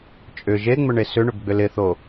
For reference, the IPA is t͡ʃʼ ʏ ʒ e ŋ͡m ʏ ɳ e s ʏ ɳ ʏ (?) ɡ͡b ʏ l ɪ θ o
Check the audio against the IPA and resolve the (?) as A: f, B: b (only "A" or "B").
B